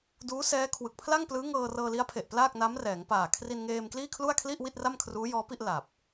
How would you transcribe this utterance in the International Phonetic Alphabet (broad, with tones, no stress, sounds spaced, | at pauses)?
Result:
d uː˦˥ s ɛː˦˥ kʰ w ɯ˨˩ k̚ pʰ l a˥˩ ŋ p l ɯː˦˥ ŋ ɤː˧ r ɤː˧ l i˦˥ a̯ pʰ e˨˩ ʔ p l aː˥˩ k̚ n a˦˥ m r ɛː˩˦ ŋ p aː˨˩ kʰ r i˧ n ŋ eː˧ m k l iː˥˩ kʰ l u˥˩ a̯ kʰ l i˥˩ ʔ w i˥˩ t̚ r a˥˩ m kʰ r uː˦˥ j ɔː˦˥ p i˥˩ ʔ l a˨˩ p̚